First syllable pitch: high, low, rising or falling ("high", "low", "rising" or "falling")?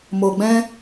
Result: low